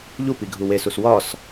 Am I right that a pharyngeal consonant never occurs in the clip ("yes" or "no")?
yes